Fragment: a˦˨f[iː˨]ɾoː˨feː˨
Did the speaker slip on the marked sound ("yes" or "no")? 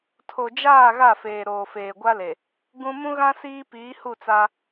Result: yes